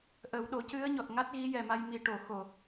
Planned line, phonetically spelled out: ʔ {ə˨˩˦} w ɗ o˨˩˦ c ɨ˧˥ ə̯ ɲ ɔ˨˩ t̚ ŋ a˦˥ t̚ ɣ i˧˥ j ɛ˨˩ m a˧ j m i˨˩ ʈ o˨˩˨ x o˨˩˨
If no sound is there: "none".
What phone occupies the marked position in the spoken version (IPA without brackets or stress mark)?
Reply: ə˨˩˦